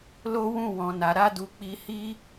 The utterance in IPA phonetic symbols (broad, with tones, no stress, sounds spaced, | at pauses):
l o˦ w ũ˦˨ w ɔ̃˨ n a˨ ɾ a˧ d u˨ k͡p i˧ h i˦